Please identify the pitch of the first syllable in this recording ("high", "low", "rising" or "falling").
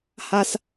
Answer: high